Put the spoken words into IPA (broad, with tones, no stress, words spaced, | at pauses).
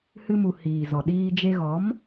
hɨ˧mu˨ hiː˨zɔ˨ɗiː˧ d͡ʒe˧ɣɔ˨˦m